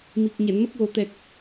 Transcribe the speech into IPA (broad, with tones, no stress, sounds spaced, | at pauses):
m i˨˩ k̚ ɲ ɛ˨˩˨ n m ə˦˥ k̚ w o˨˩ t̪ ɛ˨˩ k̚